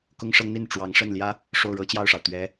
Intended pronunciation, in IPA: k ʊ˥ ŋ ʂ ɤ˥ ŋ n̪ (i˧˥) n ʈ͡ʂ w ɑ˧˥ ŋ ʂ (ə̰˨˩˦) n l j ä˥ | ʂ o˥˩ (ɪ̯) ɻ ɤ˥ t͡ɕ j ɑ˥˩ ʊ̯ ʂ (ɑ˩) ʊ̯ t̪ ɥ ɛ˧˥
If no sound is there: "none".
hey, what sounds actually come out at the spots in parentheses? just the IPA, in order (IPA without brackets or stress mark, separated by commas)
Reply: i˥˩, ə˥˩, ʊ̯, ɑ˩